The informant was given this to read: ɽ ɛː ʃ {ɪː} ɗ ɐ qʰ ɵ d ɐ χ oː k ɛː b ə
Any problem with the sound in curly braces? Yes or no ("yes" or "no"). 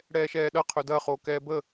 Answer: yes